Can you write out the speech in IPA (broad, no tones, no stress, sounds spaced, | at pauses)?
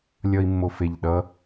lʲ ʌ i̯ mː o f e ʎ ɗ ʌ